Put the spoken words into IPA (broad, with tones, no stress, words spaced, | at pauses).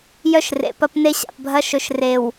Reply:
jœ˦ʃrḛ˨ pɐ˦pne˦ɕa̰˨pbʱɐ˦ ʃɵ˨ʃre˨w